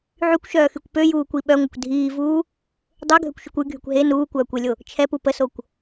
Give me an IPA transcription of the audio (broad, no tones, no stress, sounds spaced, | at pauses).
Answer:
ʕ y kʷ ʃ œː x y kʷ p ø j uː kʷ i ɓ œ ŋʷ ə kʷ dʱ iː v uː | dˤ ø ɡʱ ø kʷ ʃ y kʷ y ɡʱ y kʷ ɦ e n uː kʷ œː kʷ e lʲ o | t͡ʃʰ ɛ p u p ə s o kʷ